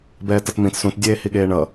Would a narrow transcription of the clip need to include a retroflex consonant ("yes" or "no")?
yes